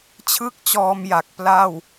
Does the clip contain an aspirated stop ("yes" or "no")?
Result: yes